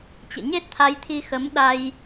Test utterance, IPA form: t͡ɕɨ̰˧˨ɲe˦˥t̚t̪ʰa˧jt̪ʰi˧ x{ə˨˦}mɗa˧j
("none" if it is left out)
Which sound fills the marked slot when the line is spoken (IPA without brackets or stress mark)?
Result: ə˨˦